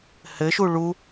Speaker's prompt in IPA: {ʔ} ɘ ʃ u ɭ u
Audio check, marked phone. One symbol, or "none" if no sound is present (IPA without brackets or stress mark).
h